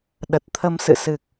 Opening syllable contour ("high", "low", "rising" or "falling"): low